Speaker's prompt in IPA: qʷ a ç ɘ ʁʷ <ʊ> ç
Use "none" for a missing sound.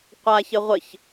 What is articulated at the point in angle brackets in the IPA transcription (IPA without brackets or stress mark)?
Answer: ə